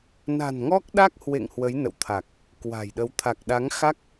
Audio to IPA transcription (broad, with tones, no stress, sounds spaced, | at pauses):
n a̤˨˩ n ŋ ɔ˦˥ k̚ ɗ a˦˥ k̚ h w ḛ˧˨ ŋ h w ə˨˦ j n ə̰˧˨ w t̪ʰ a˨˩ k̚ | k w a̤˨˩ j ɗ ə˨˦ w t̪ʰ a˨˩ k̚ ɗ a˨˦ ŋ x a˦˥ k̚